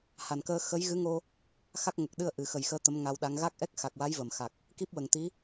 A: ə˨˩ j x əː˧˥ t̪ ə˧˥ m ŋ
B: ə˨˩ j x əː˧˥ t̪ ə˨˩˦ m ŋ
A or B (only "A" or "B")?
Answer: A